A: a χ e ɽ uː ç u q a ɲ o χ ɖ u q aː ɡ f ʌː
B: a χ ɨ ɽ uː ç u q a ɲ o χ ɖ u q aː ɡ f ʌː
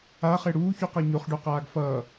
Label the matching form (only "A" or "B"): A